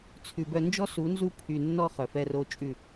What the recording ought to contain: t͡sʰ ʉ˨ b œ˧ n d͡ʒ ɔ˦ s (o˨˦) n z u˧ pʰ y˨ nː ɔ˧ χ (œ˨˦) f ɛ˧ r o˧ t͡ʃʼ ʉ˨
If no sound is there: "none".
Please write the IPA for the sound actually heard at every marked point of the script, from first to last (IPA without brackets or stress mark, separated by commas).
u˨˦, œ˨